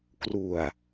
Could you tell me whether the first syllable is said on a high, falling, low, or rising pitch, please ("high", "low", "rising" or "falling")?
low